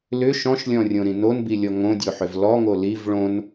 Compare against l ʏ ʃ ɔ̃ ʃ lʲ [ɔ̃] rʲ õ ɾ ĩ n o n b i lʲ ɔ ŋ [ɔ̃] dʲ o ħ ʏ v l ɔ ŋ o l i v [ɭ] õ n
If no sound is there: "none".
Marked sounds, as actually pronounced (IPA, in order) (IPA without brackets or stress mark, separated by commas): ɔ̃, õ, ɭ